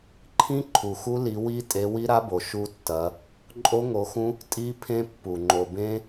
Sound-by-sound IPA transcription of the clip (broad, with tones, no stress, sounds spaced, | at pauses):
ǃʰ ĩ˦˥ ǃʰ u˩ x u˦˥ l i˨˦ w i˦˥ tʼ e˨˦ w i˦˥ ɾ a˦˥ b o˩ ʃ u˦˥ tː ɐ˨˦ | ǃʼ o˦˥ ŋ o˨˦ x ũ˦˥ | tʼ i˦˥ pʰ ẽ˦˥ pː u˩ ŋ͡ǃ o˩ b ẽ˦˥